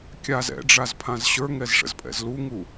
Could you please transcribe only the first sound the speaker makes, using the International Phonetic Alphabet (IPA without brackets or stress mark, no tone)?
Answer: kʲ